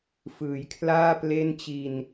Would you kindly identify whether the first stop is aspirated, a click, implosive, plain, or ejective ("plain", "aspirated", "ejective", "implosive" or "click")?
aspirated